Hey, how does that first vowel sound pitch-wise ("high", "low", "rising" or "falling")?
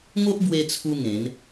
high